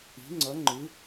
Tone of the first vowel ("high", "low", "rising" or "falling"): rising